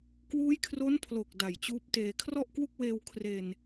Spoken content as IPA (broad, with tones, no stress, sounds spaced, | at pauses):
k w uː˦˥ j kʰ r o˦˥ n pʰ l o˨˩ k̚ d a˨˩ j t͡ɕ uː˦˥ p̚ t eː˧ kʰ r ɔ˥˩ ʔ k w u˥˩ k̚ w eː˧ w kʰ r e˧ n